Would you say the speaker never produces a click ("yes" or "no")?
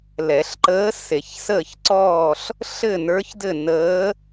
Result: no